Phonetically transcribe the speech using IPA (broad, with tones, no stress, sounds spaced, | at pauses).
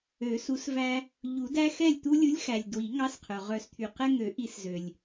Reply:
ø˨˩˦ s u˨˥ s v æ˦ | ʎ u˨˩˦ d æ˦ x ɛ˥˩ lʲ t̪ u˦ lʲ u˨˥ lʲ x æ˩ lʲ d w i˨˩˦ ŋ ɑ˨˥ s qʰ œ˩ ʁ œ˨˩˦ s t̪ʰ y˩ q ɛ˦ ŋ ø˨˩˦ ʔ i˨˩˦ s z ø˩ lʲ